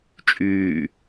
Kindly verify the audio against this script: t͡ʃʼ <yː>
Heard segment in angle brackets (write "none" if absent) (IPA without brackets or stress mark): yː